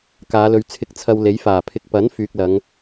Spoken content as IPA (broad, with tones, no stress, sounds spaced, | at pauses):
k aː˨˧ l ɵ˨˧ ɥ t͡sʰ ɪ˧ k̚ t͡sʰ ɐ˧ w l e˨˥ j f aː˨˩ pʰ ɪ˧ k̚ p ɐ˨˥ n f yː˨ k̚ l ɐ˨˧ ŋ